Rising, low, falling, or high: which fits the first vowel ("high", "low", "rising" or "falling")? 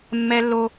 high